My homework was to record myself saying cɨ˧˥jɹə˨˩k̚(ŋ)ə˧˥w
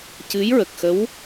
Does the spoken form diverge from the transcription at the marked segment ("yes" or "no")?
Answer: yes